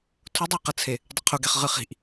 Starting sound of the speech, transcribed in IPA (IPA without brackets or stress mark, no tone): tʰ